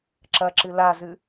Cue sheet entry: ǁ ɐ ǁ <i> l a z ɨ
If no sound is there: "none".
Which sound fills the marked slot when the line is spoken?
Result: ɨ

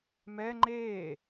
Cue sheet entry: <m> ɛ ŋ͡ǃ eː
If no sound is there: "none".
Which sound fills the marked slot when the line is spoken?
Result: m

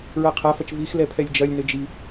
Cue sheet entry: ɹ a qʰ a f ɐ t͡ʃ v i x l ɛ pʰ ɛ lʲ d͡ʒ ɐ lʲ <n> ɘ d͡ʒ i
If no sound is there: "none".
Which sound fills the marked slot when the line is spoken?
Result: n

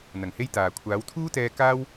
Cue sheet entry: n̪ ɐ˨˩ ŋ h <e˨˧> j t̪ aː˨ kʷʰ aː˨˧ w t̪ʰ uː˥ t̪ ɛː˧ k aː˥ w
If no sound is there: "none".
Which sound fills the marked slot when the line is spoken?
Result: e˥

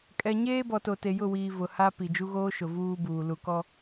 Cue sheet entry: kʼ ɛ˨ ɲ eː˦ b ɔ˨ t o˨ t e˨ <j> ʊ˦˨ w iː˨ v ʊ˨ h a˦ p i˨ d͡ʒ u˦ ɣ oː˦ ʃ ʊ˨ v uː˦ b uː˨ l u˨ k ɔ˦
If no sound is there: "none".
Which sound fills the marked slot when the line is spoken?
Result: j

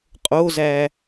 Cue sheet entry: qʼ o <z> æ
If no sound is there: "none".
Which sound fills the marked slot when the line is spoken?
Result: z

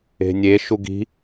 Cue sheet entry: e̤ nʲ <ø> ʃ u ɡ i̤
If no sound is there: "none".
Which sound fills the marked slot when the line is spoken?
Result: e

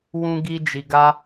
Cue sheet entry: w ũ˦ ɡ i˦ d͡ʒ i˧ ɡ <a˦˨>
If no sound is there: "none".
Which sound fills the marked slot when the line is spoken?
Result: a˦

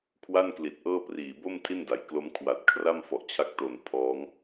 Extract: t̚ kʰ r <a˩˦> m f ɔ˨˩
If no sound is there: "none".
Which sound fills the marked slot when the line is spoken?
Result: a˥˩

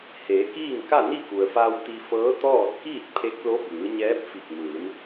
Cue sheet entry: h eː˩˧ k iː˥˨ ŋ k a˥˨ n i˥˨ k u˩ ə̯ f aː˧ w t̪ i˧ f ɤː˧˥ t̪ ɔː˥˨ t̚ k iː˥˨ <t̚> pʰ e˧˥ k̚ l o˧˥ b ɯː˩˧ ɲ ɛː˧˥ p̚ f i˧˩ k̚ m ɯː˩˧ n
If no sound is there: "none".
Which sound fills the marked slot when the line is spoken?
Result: t̚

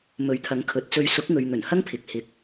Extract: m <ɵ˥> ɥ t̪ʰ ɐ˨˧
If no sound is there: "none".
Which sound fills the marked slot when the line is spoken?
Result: ɵ˨˥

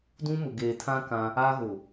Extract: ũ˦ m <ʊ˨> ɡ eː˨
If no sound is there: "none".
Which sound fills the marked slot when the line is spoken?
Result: ʊ˨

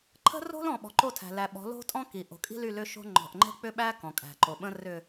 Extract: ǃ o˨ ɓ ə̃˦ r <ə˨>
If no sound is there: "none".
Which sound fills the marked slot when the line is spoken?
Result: ʏ˨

